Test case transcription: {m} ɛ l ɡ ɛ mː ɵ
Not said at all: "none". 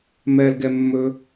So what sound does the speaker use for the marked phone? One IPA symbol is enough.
m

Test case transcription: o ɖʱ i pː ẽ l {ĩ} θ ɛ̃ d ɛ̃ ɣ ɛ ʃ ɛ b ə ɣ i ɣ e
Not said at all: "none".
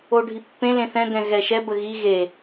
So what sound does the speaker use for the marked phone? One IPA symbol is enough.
ẽ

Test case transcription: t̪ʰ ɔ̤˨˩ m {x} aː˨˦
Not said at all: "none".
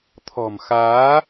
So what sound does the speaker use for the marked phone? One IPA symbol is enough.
x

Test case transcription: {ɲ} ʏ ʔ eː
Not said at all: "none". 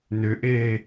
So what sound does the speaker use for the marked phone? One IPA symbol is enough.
n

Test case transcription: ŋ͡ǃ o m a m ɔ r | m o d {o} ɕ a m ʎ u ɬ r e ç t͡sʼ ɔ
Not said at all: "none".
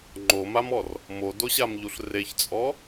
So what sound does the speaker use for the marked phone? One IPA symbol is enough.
o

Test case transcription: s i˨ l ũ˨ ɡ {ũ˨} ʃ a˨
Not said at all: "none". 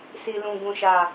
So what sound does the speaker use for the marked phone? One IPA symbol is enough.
ũ˨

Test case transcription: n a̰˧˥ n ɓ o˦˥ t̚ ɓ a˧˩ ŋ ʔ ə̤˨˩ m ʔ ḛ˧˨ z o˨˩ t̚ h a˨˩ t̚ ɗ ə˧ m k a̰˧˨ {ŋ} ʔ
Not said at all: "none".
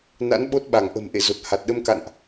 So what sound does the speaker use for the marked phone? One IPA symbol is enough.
n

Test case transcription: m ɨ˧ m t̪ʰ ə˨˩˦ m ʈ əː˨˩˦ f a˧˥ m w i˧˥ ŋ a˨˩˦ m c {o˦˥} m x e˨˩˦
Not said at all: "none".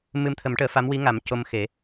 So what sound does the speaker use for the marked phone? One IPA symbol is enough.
o˧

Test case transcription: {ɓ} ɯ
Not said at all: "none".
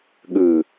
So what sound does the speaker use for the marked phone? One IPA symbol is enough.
ɠ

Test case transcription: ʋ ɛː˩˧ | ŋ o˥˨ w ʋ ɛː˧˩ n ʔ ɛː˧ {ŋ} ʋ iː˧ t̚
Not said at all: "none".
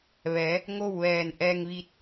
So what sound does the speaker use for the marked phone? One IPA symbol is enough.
ŋ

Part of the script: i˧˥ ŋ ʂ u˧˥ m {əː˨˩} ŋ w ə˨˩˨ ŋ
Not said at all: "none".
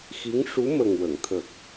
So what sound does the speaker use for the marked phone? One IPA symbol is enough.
ə˨˩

